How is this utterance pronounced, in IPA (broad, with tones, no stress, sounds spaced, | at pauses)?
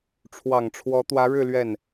ʈ͡ʂʰ w ɑ˨˩ ŋ ʈ͡ʂʰ w ɔ˧˥ t̪ w ä˧˥ ɻ ɻ̩˥˧ l ɥ ɛ˥˩ n